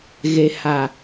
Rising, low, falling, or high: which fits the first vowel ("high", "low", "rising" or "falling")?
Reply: low